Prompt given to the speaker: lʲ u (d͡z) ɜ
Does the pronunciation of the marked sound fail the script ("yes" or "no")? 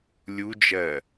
yes